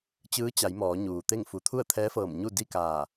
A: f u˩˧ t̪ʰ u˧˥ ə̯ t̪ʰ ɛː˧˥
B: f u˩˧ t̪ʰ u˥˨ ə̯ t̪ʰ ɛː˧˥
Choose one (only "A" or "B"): B